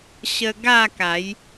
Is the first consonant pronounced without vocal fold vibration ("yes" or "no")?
yes